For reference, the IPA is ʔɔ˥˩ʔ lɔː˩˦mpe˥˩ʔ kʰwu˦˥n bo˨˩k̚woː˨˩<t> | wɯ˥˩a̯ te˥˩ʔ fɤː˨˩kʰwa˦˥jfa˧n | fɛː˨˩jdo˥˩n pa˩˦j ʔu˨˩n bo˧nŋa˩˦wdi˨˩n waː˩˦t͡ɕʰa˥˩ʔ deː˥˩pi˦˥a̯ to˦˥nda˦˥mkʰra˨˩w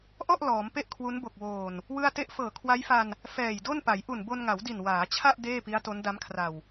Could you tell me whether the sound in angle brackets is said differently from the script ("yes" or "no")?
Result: yes